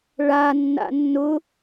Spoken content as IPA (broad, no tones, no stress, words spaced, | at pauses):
ɭanːa̰ nːʊ